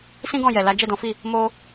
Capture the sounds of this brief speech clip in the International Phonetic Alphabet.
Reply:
s ĩ˦ ɡ ɔ̃˦˨ j ɛ˨ l a˨˦ d͡ʒ ɛ˦˨ d ɔ̃˨˦ f i˦˨ | m o˦

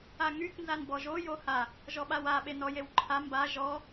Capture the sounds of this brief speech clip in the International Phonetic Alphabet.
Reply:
a ŋ y k n z a n b ɔ ʒ o j o h a | ʒ ɔ ɓ a w a ɓ e n ɔ j e w ǃʰ a m b a ʒ ɔ

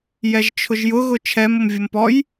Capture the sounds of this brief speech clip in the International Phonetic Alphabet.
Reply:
j ɛ ʒ t͡ʃʰ ʊ ʒ j ʊ ɣ ʊ t͡ʃʰ ɛ m ʊ m vʲ ʊ m p ɔ j

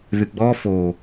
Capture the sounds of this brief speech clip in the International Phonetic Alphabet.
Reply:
ð ɨ ɡ͡b ɔ f o

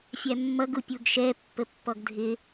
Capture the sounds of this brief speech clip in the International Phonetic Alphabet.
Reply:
fʲ æ mː ʌ ɡ u pʲ u ɡ ʃ ɛ pː ə pː ɔ ɡ dʱ ɪ

